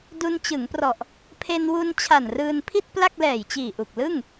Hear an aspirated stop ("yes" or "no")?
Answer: yes